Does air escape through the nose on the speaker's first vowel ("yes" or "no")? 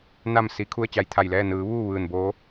no